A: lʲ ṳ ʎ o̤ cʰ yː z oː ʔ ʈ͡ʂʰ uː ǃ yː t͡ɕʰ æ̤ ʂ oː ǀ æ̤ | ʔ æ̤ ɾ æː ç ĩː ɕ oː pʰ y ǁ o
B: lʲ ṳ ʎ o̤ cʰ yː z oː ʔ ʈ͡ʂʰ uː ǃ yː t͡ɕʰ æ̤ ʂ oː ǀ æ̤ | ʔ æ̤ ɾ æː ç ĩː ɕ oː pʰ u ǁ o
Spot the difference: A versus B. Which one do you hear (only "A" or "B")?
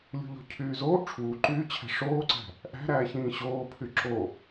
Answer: A